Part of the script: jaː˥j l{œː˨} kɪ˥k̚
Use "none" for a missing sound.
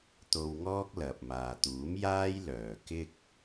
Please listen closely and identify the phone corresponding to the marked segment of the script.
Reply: œː˨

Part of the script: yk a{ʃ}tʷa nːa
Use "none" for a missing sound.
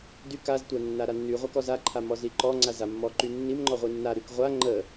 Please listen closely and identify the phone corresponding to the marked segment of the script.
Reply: z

